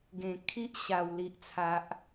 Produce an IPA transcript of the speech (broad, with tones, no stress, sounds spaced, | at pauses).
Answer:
ɡ ẽ˨˩ kʰ i˦ ʔ ɕ a˨˩ w l i˨ ʔ t͡sʰ a˨ ʔ